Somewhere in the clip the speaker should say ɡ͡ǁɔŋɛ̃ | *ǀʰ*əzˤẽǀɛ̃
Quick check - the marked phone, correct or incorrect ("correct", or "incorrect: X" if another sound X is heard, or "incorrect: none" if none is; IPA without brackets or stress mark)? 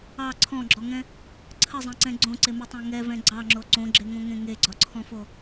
correct